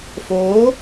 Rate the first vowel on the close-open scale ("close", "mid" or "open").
mid